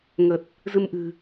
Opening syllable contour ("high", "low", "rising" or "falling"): low